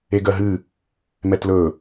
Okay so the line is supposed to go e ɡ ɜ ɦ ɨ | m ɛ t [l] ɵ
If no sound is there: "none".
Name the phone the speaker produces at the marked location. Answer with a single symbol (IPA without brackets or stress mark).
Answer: l